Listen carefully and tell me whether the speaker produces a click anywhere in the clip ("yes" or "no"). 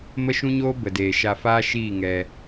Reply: no